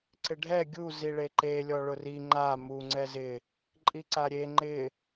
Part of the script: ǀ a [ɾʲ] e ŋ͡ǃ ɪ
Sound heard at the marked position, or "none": ɾʲ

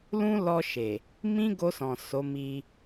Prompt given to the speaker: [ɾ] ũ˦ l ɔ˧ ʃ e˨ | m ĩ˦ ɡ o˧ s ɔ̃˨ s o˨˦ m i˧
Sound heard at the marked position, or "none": l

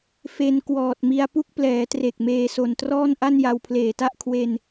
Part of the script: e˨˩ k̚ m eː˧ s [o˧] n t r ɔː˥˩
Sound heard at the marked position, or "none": o˨˩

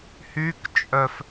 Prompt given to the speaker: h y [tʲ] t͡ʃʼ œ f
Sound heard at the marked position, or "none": k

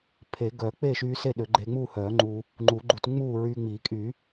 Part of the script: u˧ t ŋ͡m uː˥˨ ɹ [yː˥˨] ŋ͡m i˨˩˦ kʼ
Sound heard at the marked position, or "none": yː˧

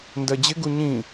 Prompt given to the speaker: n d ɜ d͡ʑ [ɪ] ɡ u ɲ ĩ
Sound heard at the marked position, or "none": ɪ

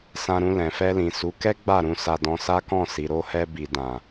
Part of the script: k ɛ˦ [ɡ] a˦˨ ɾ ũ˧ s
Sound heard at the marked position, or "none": ɡ͡b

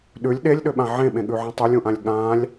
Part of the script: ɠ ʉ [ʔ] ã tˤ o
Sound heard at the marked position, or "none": ʕ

